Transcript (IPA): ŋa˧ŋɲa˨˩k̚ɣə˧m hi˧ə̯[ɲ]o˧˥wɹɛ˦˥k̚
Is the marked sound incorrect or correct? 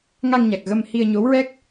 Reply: correct